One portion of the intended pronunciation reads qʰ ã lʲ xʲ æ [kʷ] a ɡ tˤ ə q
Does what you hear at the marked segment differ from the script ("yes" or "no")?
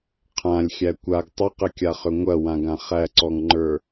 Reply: no